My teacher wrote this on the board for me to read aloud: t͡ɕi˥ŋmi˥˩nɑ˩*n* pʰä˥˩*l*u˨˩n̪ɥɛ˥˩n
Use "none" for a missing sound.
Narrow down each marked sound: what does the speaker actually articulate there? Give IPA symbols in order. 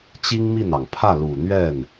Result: ŋ, l

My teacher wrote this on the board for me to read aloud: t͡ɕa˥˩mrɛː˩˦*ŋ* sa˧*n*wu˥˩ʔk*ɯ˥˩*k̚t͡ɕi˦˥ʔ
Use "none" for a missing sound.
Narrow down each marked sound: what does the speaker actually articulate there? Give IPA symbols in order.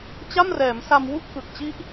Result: m, m, ɯ˨˩

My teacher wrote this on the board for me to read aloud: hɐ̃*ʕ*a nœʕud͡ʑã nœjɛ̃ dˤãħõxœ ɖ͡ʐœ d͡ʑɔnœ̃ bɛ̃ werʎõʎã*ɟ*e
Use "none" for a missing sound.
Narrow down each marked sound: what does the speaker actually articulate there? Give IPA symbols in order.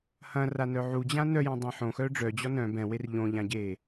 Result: r, ɟ

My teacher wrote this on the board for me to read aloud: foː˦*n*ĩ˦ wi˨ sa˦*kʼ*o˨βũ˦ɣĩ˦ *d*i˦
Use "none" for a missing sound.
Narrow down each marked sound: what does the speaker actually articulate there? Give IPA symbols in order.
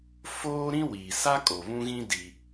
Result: ɾ, kʼ, d

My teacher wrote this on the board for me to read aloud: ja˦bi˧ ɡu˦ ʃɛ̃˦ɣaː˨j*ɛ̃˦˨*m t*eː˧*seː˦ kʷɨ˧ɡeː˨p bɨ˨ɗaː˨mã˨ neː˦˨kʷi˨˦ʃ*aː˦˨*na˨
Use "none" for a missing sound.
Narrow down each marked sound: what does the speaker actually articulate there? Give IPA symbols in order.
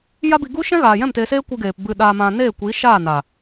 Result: ɛ̃˦˨, eː˧, aː˦˨

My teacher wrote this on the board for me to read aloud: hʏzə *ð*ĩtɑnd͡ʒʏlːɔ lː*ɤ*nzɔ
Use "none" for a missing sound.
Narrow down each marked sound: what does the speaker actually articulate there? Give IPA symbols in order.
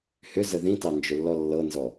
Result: ð, ɤ

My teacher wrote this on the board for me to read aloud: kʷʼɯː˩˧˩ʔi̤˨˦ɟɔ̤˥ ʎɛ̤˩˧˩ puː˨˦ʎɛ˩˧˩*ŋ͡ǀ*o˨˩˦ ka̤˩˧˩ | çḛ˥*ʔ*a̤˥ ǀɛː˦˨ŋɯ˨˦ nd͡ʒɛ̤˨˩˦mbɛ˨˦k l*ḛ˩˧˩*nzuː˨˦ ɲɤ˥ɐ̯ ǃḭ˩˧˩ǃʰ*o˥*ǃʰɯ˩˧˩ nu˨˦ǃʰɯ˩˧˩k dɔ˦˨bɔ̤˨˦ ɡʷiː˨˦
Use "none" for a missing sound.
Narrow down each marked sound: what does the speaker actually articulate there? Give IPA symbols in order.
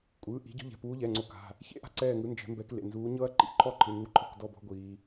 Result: ŋ͡ǀ, ʔ, ḛ˩˧˩, ɔ˥

